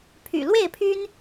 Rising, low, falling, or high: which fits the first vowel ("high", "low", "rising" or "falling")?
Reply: low